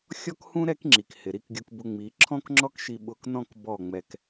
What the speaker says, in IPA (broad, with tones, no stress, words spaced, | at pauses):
xʲɔ˦khũ˦ ɾɛ˦kŋ͡ǁi˨k hɪ˨ɾi˦˨kɡʲu˧kbʊ˧ ŋ͡mi˨˦ ǁʰɔ̃˦kŋ͡ǁɔ˦k ʃi˧ɓʊ˧knɔ̃˦˨k bɔ˦˨ ŋ͡mɛ˧k